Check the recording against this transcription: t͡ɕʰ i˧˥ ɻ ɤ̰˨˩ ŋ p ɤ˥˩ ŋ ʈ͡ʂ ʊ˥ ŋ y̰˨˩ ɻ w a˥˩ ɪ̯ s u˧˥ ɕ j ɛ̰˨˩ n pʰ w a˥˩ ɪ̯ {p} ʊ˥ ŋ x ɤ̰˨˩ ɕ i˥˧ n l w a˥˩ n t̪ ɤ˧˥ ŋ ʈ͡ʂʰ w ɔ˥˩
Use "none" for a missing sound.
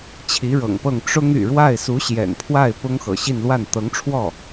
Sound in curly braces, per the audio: p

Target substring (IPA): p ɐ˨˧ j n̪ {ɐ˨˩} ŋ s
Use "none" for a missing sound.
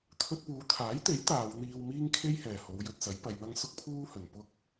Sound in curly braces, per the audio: ɐ˥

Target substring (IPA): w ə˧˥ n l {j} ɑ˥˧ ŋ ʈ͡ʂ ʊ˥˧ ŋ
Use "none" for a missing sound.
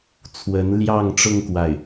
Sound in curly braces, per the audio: j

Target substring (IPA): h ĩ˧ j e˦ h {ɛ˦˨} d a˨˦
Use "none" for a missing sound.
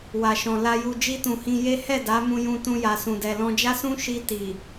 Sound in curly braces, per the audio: ɛ˦˨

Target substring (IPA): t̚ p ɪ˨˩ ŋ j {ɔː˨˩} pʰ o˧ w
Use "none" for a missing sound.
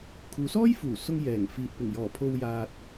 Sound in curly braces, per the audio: ɔː˨˩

